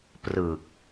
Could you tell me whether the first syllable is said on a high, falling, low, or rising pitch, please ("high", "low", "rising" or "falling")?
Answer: low